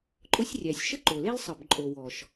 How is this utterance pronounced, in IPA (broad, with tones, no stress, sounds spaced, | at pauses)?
ǃʼ ʊ˥ sʲ rʲ æ˩ sʲ ʃ ə˥ ǃ o˩ l e˥ l sˤ ə˩ b ǃʼ o˩ w ɔ˩ ʃ